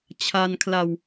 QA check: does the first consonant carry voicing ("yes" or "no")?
no